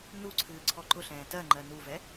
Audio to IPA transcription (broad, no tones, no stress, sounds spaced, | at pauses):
n u ǀʰ ɨː ǀʰ ɔ ǃ ʊ ɬ ɛ̃ː t ɜ ŋ͡ǃ ɜ n u v ɛ